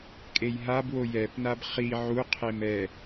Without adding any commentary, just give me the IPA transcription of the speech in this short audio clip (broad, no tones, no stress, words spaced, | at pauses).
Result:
kʼejɦabwo jɛpnab χi ʕuqʰem ɛ